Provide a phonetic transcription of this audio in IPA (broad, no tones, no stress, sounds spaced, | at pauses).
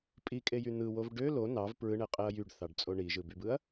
pʼ i kʼ e j y n̪ ɯ w o v ɖ ø l o n ɑ v p ɹ ɯ ɳ e qʼ e ɐ̯ j y ɖ θ ɑ ɖ t͡sʼ o ɳ i ʒ ɯ b y b ɯ ɐ̯